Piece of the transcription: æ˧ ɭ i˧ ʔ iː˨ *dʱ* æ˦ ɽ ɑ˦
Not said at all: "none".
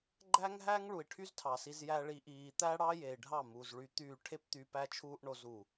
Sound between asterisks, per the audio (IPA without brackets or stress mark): t̪